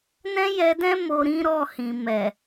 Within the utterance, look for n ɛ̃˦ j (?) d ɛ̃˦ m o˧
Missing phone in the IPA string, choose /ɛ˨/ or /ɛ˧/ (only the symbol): ɛ˧